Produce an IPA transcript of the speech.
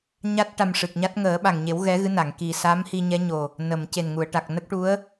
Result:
ɲ a˦˥ t̚ ʈ a˧ m ʂ ɨ˨˩ k̚ ɲ a˦˥ t̚ ŋ əː˨˩˦ ɓ a˨˩ ŋ ɲ e˨˩˦ w ɣ ɛ˧˥ ɣ ɨ˧˥ n a˨˩˨ ŋ k i˨˩ s a˧˥ m h i˧ ɲ ɛ˧˥ ɲ o˨˩ | n ə˨˩˨ m c e˨˩ n ŋ u˨˩˨ ə̯ ʈ a˨˩ k̚ n ə˦˥ k̚ ʈ u˧˥ ə̯

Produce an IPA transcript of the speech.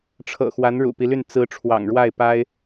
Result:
ʈ͡ʂʰ ɤ̰˨˩ x w a˧˥ n ɻ ṵ˨˩ p i˦ l y˥˩ n t͡s ɹ̩˧˥ ʈ͡ʂʰ w ɑ̰˨˩ ŋ ɻ w a˥˩ ɪ̯ p a˥ ɪ̯

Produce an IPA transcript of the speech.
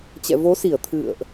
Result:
t͡ɕ ɛ̰˧˨ v o˨˦ s i˧˩ ə̯ t̪ʰ ɨ̰˧˨ ə̯ ʔ

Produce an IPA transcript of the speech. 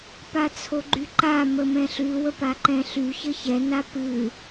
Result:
p a t͡sʰ o ɡ͡ǃ y ǃ a m ə m ɛ̃ ɬ ʉ w ə p a ǃ ɛ̃ ɬ y ç ə ç ɛ n a p ɨ

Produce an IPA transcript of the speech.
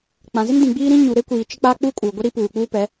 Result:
k͡p ã˨ z ɪ˦ n d ĩ˨ ɡ͡b iː˦ ɾ ĩ˦ ɲ u˨ ɾ e˦ kʷ iː˨ t͡ʃ ɪ˦ k͡p aː˦ k͡p uː˦ kʼ uː˨ ɡʷ e˦ ɾ i˦ p uː˨ k͡p uː˦ p ɛ˨˦

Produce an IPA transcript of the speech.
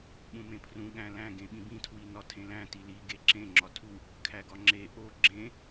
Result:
ɓ ũ m ẽ pʰ r ũ ɠ æ̃ l æ̃ ɡ ẽ ɓ ĩ b ĩ tʰ w i n ɒ tʰ ẽ l æ̃ t i l i ɡ e ǁ ẽ ŋ͡ǁ ɒ tʰ u | kʰ æ ɡ ɒ ŋ͡ǁ e ʔ o ɡ͡ǁ ẽ

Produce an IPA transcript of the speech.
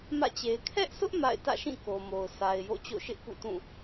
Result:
m ä̰˦˨ t͡ɕ e˨ ɪ̯ kʰ ɛ˦ ʔ s ʊ˦ ʔ m a̰˦˨ ɪ̯ t ä̰˦˨ ʃ ĩ˦˨ k o˨ m o˨ ʊ̯ s a˨ ɪ̯ j o̰˦˨ t͡ɕ o̰˦˨ ʃ ɪ˦ ʔ p ṵ˦˨ t ũ˦˨

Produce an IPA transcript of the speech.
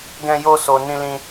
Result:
ɡ ɛ̃˦ j o˦ s o˧ n ĩ˦ l ĩ˦

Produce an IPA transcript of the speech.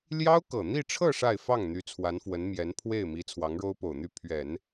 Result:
l j ɑ˥ ʊ̯ k ɤ˨˩ n̪ i˥˧ ʈ͡ʂʰ ɤ˥˧ ʂ a˥˧ ɪ̯ f ɑ˥˩ ŋ n̪ y˧˥ t͡sʰ w a˧˥ n f w ə˧˥ n m j ɛ˧˥ n pʰ w e˥˩ ɪ̯ m i˧˥ t͡sʰ w ɑ˧˥ ŋ ɻ o˥ ʊ̯ p o˨˩ ʊ̯ n̪ y˥˩ pʰ ɥ ɛ˨˩˦ n

